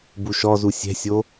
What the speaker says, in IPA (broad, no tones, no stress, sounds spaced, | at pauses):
b u ʃ ɔ z u sʲ ɛ̤ sʲ o